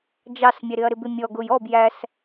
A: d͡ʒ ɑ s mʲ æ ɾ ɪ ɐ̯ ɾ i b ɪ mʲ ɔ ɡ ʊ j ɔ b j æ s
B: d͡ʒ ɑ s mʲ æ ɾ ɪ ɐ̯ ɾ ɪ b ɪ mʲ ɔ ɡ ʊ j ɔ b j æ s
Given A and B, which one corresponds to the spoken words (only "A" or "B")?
B